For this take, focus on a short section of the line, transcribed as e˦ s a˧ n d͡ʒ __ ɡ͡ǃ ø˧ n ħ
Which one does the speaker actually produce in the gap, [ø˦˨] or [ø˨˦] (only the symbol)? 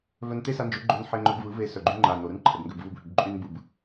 ø˨˦